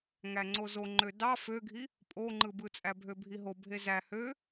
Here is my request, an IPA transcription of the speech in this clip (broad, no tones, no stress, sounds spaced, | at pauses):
ŋ æ ŋ͡ǀ o z o ŋ͡ǃ ø d ɑ f ø ɡʱ i | pʼ o ŋ͡ǃ ɯ b ɯ t͡sʼ æ bʱ ø bʱ i ɦ o bʱ e z æ h ø